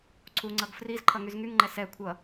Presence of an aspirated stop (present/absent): present